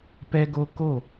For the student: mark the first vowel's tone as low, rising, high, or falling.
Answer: high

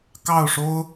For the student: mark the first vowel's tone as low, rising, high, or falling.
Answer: falling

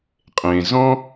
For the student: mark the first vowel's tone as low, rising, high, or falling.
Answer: low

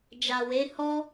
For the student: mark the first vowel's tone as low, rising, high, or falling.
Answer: low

